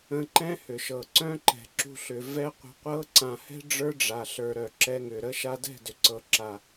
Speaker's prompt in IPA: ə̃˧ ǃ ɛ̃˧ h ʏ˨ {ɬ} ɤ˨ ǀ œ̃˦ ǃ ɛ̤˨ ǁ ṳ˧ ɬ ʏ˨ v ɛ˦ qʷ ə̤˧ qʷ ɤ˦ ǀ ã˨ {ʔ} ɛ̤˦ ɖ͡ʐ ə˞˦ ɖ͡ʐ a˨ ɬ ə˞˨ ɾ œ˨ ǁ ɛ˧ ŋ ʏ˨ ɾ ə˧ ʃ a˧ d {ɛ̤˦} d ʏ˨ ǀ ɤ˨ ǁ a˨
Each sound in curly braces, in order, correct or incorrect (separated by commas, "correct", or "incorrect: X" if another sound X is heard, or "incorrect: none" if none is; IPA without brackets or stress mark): incorrect: ʃ, incorrect: h, incorrect: ɛ̤˦˨